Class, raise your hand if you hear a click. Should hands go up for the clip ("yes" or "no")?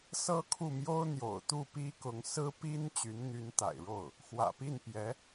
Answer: no